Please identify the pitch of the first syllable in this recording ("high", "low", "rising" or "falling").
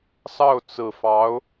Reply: falling